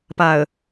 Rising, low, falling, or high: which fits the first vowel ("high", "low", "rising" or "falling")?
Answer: low